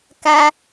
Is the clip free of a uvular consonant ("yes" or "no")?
yes